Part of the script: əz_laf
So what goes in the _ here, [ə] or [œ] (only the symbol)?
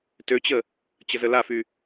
ə